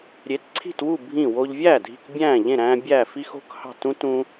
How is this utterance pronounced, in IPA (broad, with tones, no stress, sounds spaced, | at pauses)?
ɾʲ e˩˧ t ǀʰ i̤˧˩ t w u˧˩ bʱ ĩ˧˩ w o˧ ʎ vʲ æː˥˩ dʱ i̤˧˩ k bʲ æ̃ː˧˩ ʎ ẽ˧˩ ɾ æ̃ː˧ bʲ æː˧˩ f i˧ x o̤˧ k h ɑ̤˧˩ t ũ˧ t ũ˧